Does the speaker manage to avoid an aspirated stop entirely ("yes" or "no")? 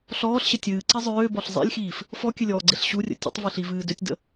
yes